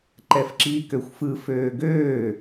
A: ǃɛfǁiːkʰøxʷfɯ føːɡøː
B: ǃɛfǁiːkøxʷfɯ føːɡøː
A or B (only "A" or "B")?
B